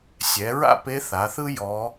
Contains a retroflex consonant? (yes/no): no